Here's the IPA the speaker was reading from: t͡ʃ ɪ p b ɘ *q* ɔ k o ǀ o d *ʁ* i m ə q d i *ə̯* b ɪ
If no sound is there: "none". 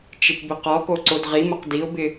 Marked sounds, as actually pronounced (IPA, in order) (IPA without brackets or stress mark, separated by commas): q, ʁ, ʊ̯